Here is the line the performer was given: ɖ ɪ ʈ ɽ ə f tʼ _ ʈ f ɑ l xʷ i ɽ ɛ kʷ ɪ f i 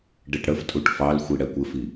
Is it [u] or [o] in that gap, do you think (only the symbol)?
u